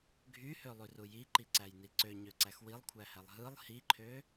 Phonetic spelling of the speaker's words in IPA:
ɡʱ y h ø lˠ y r u j i ǃ i ǀ æ j n i ǀ ø ɲ ø ǀ æ x w i lˠ kʷʰ æ h æ lˠ ɦ ɯ lˠ h i ǃʰ ø

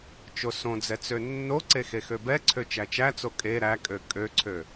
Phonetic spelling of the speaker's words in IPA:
t͡ʃ o s õ d͡z ɛ t͡s ø nː o ǀ e x e x ø b ɛ ǀʰ ø t͡ʃ æ t͡ʃ æ t͡s o kʼ e ɾ æ kʼ ø kʼ ø ǀʰ ø

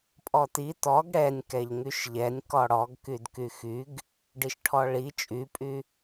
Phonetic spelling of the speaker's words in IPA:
pʼ ɔ t i t ɔ ɡ ɽ ɛ nʲ k ɛ ʎ ŋ y ʃ ʎ ɛ nʲ k ɔ ɽ ɔ ɡ k y d k y x y ɡ | ɖ i ʃ ʈʰ ɔ ɭ i t͡ʃʼ y pʼ y

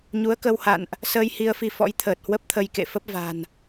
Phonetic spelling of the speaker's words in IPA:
ɲ u˨˦ ə̯ k ə˧ w h a̰˧˨ n ʔ | s əː˧ j h i˧ ə̯ f i˧ f ɔ̰˧˥ j t̪ʰ əː˨˩ t̚ h w ə˦˥ p̚ t̪ʰ ə˧ j k ḛ˧˨ f ə˦˥ p̚ v a̤˨˩ n

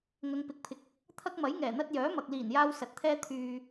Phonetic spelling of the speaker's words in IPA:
ŋ ɐ˨˧ ŋ p ɪ˨˥ k̚ pʰ ɪ˨ k̚ | t̪ʰ ɐ˥ k̚ m ɐ˨˥ j ŋ ɛː˨˩ n̪ ɐ˧ t̚ j œː˨˥ m ɐ˨ k̚ l iː˨˩ n j aː˧ w s ɐ˨˥ t̚ t̪ʰ ɛː˥ t̪ʰ yː˨

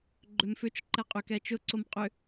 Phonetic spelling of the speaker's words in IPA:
ɡ͡ǃ ʏ m f ʏ t͡ʃ ǃ ɛ qʼ ʏ k ɛ t͡ʃ ʊ ǀ o m qʼ ʏ

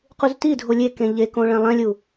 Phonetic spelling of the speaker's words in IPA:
q u z t i dʱ o lʲ e k ẽ ʎ e k õ ɭ ɛ̃ lˠ ɛ̃ lʲ u

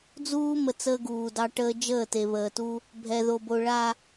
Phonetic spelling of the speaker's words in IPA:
d͡z uː˦ m ə˨ t͡s əː˦ ɡ uː˨ d ɑ˦ ʈ əː˦ d͡ʒ əː˦˨ t e˨ β əː˨ t u˦ | bʱ ɛ˨ ð o˨ b o˨ ɭ a˨

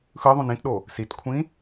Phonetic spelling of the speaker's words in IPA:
x ɯ ðˤ ũ n ĩ t ɗ o | s i t kʷʰ ĩ

